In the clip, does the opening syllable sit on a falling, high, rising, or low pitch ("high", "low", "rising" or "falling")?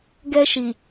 high